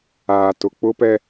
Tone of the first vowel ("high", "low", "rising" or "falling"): low